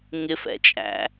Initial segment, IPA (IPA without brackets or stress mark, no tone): ŋ